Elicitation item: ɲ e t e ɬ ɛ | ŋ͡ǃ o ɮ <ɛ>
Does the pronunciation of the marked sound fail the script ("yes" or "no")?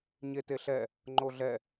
no